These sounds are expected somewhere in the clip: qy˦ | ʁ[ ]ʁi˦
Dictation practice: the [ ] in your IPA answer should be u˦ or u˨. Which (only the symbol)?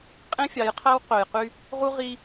u˦